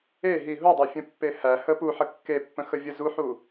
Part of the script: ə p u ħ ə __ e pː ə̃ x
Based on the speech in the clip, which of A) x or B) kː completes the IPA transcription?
B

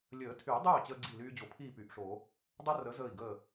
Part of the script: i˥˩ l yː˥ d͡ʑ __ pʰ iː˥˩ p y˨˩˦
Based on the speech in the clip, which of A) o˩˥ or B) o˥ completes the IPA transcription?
A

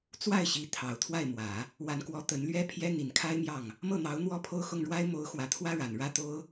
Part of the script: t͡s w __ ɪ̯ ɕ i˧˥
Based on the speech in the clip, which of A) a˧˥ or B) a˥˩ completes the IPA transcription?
B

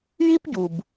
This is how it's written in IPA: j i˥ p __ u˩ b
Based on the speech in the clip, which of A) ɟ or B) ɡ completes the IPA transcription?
A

